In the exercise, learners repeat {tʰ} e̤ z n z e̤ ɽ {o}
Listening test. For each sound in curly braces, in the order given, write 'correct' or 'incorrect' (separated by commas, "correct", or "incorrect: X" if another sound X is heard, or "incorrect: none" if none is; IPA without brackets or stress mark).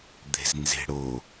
incorrect: d̪, correct